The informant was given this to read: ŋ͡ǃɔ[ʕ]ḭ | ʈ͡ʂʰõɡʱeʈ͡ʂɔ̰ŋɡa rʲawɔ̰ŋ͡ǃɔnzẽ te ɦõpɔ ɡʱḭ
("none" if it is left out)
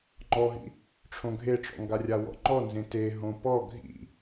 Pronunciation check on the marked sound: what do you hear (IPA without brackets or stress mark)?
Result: ɦ